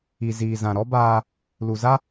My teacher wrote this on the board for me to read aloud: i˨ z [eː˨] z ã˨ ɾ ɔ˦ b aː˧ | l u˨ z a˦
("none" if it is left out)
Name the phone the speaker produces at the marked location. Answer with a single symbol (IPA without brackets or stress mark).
iː˨